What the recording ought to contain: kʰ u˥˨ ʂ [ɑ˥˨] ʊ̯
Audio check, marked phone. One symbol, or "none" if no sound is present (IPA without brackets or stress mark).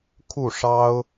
ɑ˦